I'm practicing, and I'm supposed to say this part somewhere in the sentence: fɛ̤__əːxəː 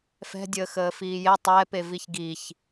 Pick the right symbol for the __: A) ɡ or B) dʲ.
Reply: B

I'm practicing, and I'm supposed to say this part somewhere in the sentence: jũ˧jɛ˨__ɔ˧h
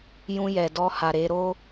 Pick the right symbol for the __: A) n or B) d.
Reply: B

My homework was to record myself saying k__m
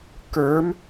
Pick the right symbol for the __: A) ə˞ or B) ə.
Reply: A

